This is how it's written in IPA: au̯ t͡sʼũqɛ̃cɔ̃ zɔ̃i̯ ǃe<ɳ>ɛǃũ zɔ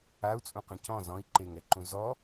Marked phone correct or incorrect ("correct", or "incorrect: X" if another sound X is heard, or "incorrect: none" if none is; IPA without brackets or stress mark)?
incorrect: ŋ